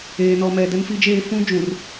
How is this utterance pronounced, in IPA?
eː˨nɔ˨mɛ˨ dɛ˦nfi˦d͡ʒeː˦ fũ˦d͡ʒũ˨r

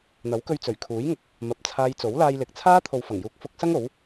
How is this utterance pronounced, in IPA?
n̪ɐ˨˥wkɵ˧ɥt͡sɵ˨˩ɥkʰuː˨˥j ŋʊ˨k̚ | mɐ˨˥p̚t͡sʰaː˧j t͡so˨˥wlaː˧jlɪ˨k̚t͡sʰaː˥ t̪ʰo˨wfɐ˨˩ŋjuː˨˥k̚ fʊ˨˥k̚sɐ˥ŋ o˨˥w

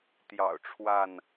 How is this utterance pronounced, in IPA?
t̪jɑ̰˨˩ʊ̯ʈ͡ʂʰwa˥˨n

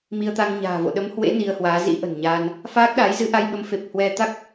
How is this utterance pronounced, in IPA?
mi˧ə̯t̪a˧ŋ ɲa̤ː˨˩vo̰˧˨ɗə˨˦mhwḛ˧˥ ni˧ə̯hwaː˨˦ zḭ˧˥ʔə̤˨˩nɲaː˧n | faː˦˥k̚ɗa˨˦j zɨ˨˦ʔa˧jɓə˨˦mfe˨˩p̚ hwɛ˧t̪a˦˥k̚

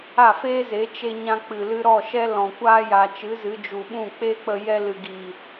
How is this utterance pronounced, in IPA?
a˦˨feː˦ze˨˦ t͡ʃe˧ɲã˧ k͡pɨ˨lɨ˧ɾɔ˦˨ ʃɛ˦ lɔ̃˨kʷaː˧ja˨ t͡ʃɨ˨˦zɨ˨˦d͡ʒu˨ɓũ˦˨ k͡pe˦k͡pə˧ jɛ˧lɨ˨ɡiː˨

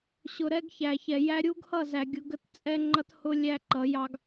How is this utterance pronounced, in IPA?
ɕʊ˨ɾɛ˦ɡçæ˨ çɛ˨ jæ˦ ɾʲu˦ɡhʌ˦˨ zæ˨ ɡʲʊ˦ ɡə˦tt͡sʼɛ˦ ŋ͡ǃʌ˦thʊ˦ lʲæ˦ǃʌ˨˦jɑ˦ɡ

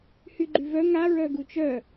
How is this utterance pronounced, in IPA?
hyɡ͡ǃyvœ ŋa ɹœɡut͡ʃœ

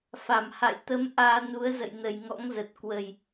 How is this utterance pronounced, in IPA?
fa˧˩mha̰˧˨jt̪ə˨˦m ʔaː˧nu˨˦ə̯ zə̰˧˨jnə˨˩jŋɔ̰˧˥ŋzə˨˩t̚ kwə˨˩j

